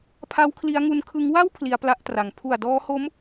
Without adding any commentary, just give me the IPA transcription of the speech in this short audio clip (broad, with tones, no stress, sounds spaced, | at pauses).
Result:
pʰ a˦˥ w kʰ l i˦˥ a̯ ŋ u˦˥ n kʰ ɯ˦˥ ŋ w a˥˩ w pʰ l i˧ a̯ p l a˥˩ ʔ t r a˩˦ ŋ pʰ u˨˩ a̯ d ɔː˦˥ h o˦˥ m